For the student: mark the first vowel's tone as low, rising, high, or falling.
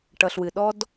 low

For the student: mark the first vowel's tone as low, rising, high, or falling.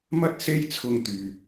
high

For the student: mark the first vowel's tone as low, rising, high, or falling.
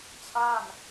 falling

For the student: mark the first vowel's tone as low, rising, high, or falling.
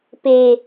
low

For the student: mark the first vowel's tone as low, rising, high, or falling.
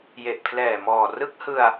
low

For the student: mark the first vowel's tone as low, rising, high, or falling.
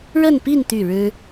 falling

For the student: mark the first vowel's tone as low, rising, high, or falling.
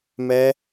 high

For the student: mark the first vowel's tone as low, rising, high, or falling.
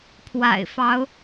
low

